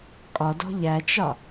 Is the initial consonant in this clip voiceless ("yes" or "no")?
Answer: yes